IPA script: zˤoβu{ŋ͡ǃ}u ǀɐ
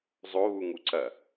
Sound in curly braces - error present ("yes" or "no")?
yes